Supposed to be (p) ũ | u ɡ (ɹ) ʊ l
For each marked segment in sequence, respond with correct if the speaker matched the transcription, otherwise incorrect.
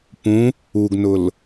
correct, incorrect: n

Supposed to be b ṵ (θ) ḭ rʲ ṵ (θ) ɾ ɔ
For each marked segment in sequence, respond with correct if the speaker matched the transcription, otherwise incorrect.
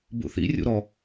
correct, incorrect: none

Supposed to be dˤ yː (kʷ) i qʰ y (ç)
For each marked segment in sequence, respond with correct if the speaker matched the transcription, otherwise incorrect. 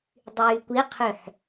correct, incorrect: ħ

